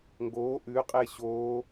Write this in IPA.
ŋ ɡ oː ʔ ʉ qʼ e ɕ oː

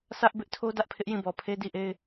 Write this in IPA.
s ä˦ ʔ b ɪ˦ ʔ tʰ o˦ d ä˦ ʔ pʰ ɪ˦ ʔ j ĩ˦˨ b ɔ˨ pʰ e˦ d i˦˨ ʔ e˦ ɪ̯

